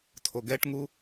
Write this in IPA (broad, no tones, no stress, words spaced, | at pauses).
tʰoɡɛʈŋu